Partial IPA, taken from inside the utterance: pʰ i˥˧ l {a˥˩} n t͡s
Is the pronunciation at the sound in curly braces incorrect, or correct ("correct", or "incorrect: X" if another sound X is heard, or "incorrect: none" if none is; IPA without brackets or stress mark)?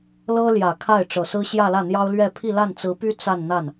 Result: correct